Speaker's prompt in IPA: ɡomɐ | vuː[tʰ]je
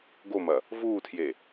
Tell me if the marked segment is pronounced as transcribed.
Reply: yes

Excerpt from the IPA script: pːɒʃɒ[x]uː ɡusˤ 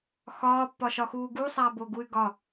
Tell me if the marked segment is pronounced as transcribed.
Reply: yes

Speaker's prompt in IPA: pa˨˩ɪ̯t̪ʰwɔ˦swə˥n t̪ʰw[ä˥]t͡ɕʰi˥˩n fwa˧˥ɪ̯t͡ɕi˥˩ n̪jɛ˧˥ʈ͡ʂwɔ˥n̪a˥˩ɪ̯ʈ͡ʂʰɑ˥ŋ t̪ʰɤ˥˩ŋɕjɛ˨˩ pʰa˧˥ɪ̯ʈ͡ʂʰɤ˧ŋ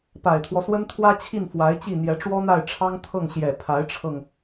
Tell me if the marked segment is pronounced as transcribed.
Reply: yes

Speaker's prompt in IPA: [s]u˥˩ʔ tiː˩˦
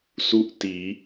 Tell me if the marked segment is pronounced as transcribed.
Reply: yes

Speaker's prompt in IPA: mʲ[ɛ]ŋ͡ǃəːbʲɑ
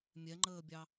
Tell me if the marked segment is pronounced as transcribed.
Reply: yes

